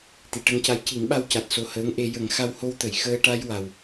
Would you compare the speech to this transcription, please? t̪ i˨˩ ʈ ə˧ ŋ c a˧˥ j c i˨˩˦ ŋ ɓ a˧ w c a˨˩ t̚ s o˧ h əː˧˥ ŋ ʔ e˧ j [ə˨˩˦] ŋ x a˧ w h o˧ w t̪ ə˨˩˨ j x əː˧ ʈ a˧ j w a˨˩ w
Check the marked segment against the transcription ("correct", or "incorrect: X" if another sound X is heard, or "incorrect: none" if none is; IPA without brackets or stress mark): correct